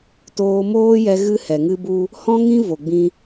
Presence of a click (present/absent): absent